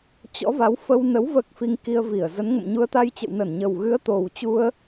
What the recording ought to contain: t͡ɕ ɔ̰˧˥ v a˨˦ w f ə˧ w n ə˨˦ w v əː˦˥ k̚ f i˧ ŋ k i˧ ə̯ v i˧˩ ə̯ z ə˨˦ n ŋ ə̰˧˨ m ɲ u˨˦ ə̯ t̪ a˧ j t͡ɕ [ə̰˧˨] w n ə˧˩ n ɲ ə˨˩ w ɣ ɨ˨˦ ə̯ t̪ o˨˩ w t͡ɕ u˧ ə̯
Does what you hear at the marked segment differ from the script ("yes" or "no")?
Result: no